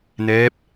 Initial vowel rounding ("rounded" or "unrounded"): unrounded